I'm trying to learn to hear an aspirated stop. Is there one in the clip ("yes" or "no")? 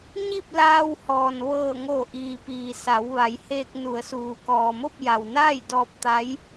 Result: no